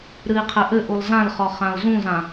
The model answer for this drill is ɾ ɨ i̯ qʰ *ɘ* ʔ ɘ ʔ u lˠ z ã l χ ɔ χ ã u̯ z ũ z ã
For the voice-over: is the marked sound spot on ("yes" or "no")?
yes